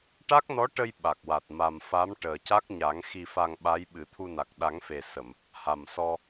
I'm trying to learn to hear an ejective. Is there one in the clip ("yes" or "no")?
no